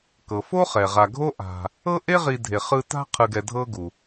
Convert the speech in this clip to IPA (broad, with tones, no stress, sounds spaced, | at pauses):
k ɤ˩ f o˥ χ ɛ˩ ʁ a˨ ɡʱ o˥ ʔ a̤˨ | ɤ˥ ʔ e˥ ʁ i˨ dʱ e˩ χ ɯ˦ t a̤˦ qʰ ɯ˨ ɡ ɛ˨ dʱ ɤ˦ ɡ u˩